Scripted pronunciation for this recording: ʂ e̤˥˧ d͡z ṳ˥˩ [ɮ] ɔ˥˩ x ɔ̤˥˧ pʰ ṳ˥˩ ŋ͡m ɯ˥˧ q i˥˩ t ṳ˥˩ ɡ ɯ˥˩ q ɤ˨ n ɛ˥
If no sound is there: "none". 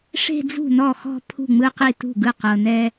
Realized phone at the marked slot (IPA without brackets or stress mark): n